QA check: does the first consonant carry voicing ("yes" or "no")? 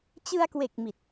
no